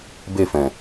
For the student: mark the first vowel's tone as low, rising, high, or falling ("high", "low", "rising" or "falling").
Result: falling